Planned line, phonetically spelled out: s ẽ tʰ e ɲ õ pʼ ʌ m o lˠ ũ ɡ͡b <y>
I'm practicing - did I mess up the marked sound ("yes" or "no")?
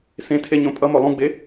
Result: yes